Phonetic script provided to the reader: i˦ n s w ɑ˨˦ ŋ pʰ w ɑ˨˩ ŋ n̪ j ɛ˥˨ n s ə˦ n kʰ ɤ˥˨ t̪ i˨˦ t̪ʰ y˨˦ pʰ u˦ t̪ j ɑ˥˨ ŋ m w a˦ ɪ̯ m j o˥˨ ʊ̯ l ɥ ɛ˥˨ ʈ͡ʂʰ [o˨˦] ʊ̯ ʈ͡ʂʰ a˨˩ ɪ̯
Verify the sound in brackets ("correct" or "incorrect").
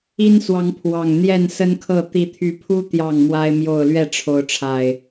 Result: correct